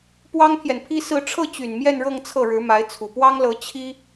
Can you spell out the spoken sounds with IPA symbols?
p w ɑ˥ ŋ pʰ j ɛ˨ n pʰ i˥ s ɹ̩˥˧ ʈ͡ʂʰ ɤ˥˩ t͡ɕ y˨˩ n m j ɛ˥˧ n ɻ ɤ˥˧ ŋ t͡sʰ ɤ˥˩ ɻ ɻ̩˧˥ m a˧˥ ɪ̯ t͡sʰ u˨˩ p w ɑ˥ ŋ l ɤ˧˥ t͡ɕʰ i˥

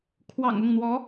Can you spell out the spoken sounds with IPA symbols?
kʰ w ɑ̰˨˩ ŋ ʊ˥˩ ŋ n̪ w ɔ˧˥

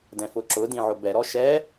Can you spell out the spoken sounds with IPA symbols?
d ɛ̃ f ʊ ǁ ʊ d ĩ ʕ ʊ b ɛ ɾ ɔ ʃ ɛ

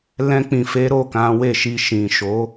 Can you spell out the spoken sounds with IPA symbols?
l ɛ̃˧ k͡p ĩ˨ f e˨˦ ɾ o˦˨ k ã˨˦ w e˦˨ ʃ i˧ ʃ ĩ˨ ʃ o˨˦

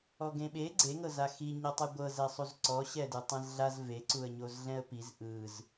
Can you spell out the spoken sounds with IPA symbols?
ɔ ɡ ẽ ɓ e ɡ͡ǀ e ŋ ɤ z a x i ɲ ɤ tˤ a ɡʷ ɤ z ɛ sˤ u z ǀ ɔ ɕ ɛ d ɯ tˤ ẽ z ɮ a z v e ǀ u ə̯ ɲ o z ɮ ɛ̃ ə̯ p i z ʔ ɯ z

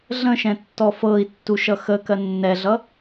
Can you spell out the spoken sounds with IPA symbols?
ɮ ə̃ ʃ ɛ̃ tː ɔ f ɤ i̯ tː u ʃ ʌ x ə k ɜ nː ɛ ɮ ʌ

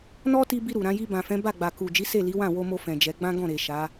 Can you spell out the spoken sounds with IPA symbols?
n ɔ˦ t i˧ b i˧ ɾ u˨ ɾ ã˨˦ j i˧ b ã˨ f ɛ̃˨˦ b a˦˨ ɡ͡b a˨ k u˨ d͡ʒ i˨˦ s e˦˨ l i˨˦ w ã˦˨ w o˧ m o˧ f ɛ̃˨ d͡ʒ ɛ˨˦ ɡ͡b ã˦ ɡ ɔ̃˦˨ ɾ e˨ ʃ a˨˦

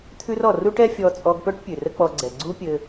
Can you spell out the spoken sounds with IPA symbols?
t̪ʰ ʉ˥ r ɔ˩ r u˥ ʈ ɛ˥ fʲ ɔ˧ t͡sʼ ɔ˧ ɡ p œ˥ ʈ pʲ ʉ˩ r ə˥ k͡p ɔ˧ ɡ͡ǀ ɛ˩ ɡ͡ǀ u˥ pʲ ɘ˧

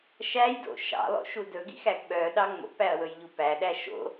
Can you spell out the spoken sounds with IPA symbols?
ʃ æ j d o̰ ʃ ɑ̰ lˠ o̰ ʃ u d ɵ ɡ ḭ x æ ɡ ɓ œ ɗ ɑ ŋ͡m o̰ p æ ɐ̯ w ɵ j ʎ u p æ ɗ æ ʃ o̰

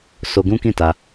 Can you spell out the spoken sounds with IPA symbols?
s o˧ ɡ ũ˦ k ĩ˦˨ t a˧

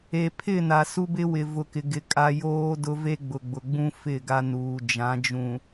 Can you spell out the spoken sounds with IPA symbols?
e˨ pʰ ɪ˦˨ n a˨ s u˦ b ɪ˦ w ɪ˨ v ʊ˨ k ɪ˨ ɡ ɪ˨ kʼ a˦ j oː˦ d ʊ˦ v e˦ ɡ͡b ʊ˨ ɡ͡b ʊ˨ ɡ͡b ũ˦ f ɪ˦˨ ɡ a˦ n uː˨ d͡ʒ ã˨˦ d͡ʒ ũ˨

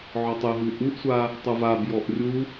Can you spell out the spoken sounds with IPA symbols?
ʕ ɔ tˤ ɨ ɦ u ʔ u ʔ sʷ a | tˤ u v a b j ɔ ʔ rʲ u

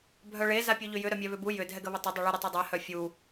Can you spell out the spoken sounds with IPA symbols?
bʱ œ ɭ e z a pʲ u ʎ ʏ j ʏ ɾ œ mʲ ɛ β ʏ b u j ʏ dʱ ɛ ɡ ə β ɪ tˤ ə dˤ œ ɭ ʏ ɾ ɪ tˤ i dˤ ɛ h œ fʲ u

